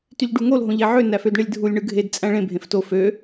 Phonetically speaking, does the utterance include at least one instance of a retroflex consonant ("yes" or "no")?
yes